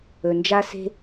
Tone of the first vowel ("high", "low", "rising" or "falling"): low